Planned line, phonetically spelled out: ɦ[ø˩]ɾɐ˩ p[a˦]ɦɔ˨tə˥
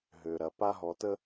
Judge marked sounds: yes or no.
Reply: yes, yes

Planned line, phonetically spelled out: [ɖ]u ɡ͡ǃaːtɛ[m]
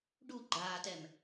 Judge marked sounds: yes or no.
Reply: yes, yes

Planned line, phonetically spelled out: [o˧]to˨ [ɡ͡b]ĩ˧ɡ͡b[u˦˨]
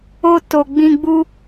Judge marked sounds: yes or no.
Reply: yes, yes, no

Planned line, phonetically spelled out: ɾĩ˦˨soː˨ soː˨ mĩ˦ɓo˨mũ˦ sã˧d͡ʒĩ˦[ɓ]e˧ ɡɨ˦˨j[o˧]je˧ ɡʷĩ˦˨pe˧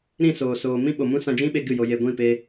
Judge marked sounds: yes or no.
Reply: yes, yes

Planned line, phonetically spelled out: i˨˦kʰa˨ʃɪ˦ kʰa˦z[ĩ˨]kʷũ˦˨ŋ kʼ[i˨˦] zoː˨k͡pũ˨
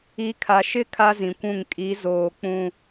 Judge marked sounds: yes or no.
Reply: yes, yes

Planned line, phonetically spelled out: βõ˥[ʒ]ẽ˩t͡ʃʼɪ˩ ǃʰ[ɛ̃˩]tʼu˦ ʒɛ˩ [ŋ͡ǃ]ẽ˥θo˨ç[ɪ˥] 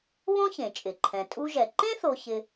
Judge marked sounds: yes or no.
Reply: no, yes, no, no

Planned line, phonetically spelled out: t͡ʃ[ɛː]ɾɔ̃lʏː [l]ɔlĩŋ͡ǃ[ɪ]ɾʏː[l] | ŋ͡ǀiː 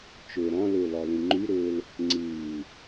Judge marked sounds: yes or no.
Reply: no, yes, no, yes

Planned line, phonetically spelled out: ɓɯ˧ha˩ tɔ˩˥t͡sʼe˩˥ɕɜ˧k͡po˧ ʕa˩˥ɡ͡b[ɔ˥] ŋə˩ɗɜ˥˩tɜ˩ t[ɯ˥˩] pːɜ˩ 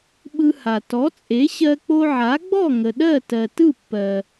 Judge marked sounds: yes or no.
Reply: no, yes

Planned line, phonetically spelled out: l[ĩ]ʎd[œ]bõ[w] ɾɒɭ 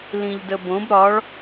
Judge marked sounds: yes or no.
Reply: yes, no, no

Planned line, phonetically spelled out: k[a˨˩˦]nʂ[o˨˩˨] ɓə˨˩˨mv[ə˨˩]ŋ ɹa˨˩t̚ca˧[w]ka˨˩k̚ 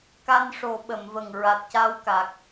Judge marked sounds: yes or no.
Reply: no, no, yes, yes

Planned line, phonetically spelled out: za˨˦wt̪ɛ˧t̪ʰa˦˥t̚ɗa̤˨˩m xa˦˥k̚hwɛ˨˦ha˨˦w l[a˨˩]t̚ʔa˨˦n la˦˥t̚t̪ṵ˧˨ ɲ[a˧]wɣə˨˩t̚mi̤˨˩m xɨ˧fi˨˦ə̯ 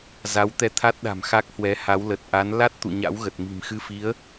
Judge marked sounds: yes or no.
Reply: no, no

